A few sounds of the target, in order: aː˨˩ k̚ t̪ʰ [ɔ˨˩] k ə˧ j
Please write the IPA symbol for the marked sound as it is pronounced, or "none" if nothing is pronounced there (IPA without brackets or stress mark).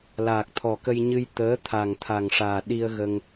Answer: ɔ˨˩